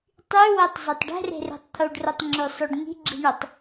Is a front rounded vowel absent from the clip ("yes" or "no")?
no